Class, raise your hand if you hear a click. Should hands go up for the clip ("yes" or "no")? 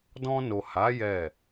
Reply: no